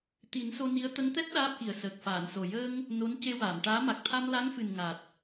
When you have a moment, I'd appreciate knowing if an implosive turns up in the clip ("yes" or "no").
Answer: yes